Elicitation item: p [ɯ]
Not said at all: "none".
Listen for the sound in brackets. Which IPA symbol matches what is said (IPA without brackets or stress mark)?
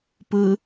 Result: ɯ